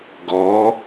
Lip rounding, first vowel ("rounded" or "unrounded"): rounded